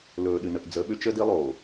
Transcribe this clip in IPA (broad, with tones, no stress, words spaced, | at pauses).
lɵː˨ɗɨ˨nə˨ʔ d͡zə˨˦ɓʏ˦t͡ʃə˦di˦ lˠoː˨